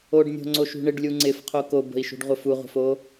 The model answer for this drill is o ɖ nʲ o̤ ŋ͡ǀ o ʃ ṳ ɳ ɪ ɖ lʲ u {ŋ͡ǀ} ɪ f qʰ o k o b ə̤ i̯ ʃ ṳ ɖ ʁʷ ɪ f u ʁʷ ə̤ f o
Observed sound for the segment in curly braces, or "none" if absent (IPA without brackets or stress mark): ŋ͡ǀ